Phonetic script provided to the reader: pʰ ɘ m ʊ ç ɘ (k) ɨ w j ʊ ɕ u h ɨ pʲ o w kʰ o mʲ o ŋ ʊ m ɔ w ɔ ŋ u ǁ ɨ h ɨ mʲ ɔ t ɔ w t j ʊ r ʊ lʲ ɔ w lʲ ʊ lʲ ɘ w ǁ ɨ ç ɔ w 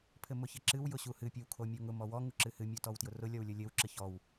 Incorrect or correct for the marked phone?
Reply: incorrect: ǁ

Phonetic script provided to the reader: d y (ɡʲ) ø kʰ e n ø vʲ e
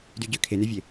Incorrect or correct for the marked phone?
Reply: incorrect: ɟ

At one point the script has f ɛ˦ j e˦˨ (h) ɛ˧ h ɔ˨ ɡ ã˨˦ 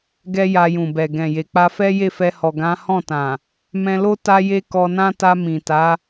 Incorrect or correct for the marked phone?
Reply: incorrect: f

